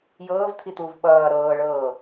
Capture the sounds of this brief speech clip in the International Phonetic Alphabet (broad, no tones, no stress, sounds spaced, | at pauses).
j ɤː v t̪ʰ i t̪ uː v ɓ ʌː ɾ ɤː ɭ ɤː